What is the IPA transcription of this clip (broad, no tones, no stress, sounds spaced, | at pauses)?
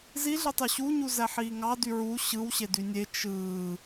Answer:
z i ɮ ɯ tˤ y ɕ u ɲ u z æ ħ iː ŋ ɑ d y ɹ u ɕ ɯ w ɕ e d y nʲ e t͡ʃ ɯː